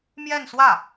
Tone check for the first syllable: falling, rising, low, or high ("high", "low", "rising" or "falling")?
falling